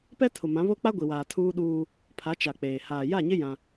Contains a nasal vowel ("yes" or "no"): yes